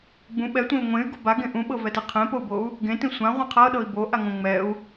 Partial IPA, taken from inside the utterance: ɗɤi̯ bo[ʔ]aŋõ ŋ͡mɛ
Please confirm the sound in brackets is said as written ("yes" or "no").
yes